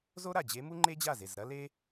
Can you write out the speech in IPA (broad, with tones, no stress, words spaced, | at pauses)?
zo˥ɾa˧˩d͡ʑe˧˥ mu˥ŋ͡ǃe˥d͡ʑa˥˩ze˧˩z ɾɐ˥le˥